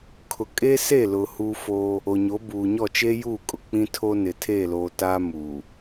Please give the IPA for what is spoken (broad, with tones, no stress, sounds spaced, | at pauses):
kʰ ʊ˨ kʼ e˦ s e˦˨ l ʊ˨ h uː˦ f oː˦ | o˨ ɲ o˨˦ b uː˨ ɲ ɔ˦˨ t͡ʃ eː˦ j uː˦˨ kʼ ʊ˨ k͡p ĩ˦ tʰ o˦ n ɪ˨ tʰ eː˦˨ l oː˨ t aː˦ m uː˨